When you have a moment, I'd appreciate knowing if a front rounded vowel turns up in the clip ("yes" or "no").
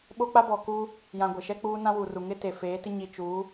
no